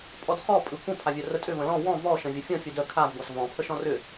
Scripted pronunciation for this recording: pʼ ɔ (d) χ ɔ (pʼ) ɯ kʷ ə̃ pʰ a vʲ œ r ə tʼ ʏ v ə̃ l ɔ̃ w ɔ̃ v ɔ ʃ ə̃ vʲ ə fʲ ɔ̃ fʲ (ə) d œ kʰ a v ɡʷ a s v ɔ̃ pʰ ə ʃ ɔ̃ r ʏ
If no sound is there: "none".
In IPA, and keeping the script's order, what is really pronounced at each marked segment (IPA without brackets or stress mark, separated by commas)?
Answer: d, pʼ, ɯ